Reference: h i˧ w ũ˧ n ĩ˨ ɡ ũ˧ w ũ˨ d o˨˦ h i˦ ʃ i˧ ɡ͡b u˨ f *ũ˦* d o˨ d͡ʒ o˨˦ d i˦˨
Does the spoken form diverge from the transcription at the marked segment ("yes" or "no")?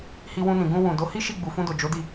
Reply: yes